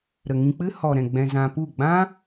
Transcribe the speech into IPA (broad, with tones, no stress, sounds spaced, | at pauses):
ɾ ə˨ ŋ ĩ˧ k͡p ɨ˦ h ɔ˨ ɾ ɛ̃˨ ɡ͡b ɛ̃˧ z ã˧ p u˦˨ ɡ͡b ã˦